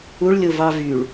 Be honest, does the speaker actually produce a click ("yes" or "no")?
no